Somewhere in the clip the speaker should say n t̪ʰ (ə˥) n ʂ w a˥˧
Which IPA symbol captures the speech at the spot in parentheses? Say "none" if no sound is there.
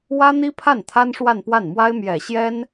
a˥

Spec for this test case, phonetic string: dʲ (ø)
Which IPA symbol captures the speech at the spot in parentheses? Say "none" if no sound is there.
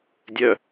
œ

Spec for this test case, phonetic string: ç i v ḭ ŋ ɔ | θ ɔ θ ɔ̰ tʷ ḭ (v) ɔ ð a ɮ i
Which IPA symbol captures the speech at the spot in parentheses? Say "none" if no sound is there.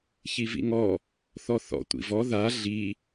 v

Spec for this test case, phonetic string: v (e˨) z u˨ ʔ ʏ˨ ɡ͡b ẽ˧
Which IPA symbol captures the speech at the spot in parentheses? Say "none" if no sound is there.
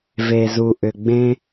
e˨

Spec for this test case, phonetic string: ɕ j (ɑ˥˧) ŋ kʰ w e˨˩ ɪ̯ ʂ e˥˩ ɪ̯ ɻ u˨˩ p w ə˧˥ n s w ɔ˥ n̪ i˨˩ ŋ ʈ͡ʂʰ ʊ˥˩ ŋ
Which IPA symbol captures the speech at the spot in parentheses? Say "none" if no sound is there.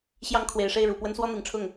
ɑ˧˥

